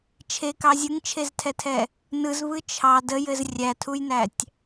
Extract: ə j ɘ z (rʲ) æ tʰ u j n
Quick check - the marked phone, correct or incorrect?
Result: correct